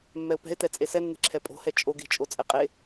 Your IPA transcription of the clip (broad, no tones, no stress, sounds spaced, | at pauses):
mː ɛ ʊ̯ p ɛ̤ ɪ̯ t ɛ t͡sʼ e s ɛ nː e̤ ǁʰ ɛ pʼ o̤ h ɛ t͡ʃʼ o ɡ e̤ t͡ʃʼ o t͡sʼ ɛ qʼ e